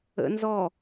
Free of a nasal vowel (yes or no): yes